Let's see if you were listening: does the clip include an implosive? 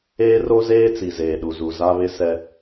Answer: yes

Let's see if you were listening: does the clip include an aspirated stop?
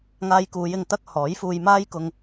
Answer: no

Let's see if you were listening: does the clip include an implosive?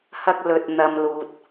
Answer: no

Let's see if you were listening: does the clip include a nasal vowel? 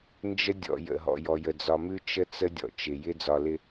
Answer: no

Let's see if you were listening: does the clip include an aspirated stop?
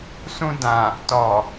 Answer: no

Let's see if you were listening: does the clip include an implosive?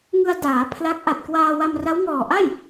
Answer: no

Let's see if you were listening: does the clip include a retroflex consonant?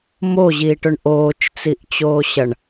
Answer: yes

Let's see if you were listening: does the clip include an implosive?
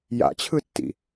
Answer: no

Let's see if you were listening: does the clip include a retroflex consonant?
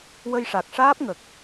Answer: yes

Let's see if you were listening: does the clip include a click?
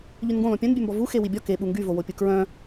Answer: no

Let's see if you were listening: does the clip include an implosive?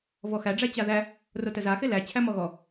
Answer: no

